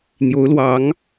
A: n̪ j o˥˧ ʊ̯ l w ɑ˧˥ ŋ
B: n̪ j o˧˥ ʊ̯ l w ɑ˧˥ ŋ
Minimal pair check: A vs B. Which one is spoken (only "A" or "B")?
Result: B